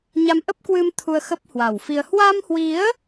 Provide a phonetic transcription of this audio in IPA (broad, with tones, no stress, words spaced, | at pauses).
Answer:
ɲa˧m ʔə˦˥p̚kwɨ˧m t̪ʰu˧ə̯xə˦˥p̚hwa˨˩wfi˧ə̯ hwa˧mhwi˨˦ə̯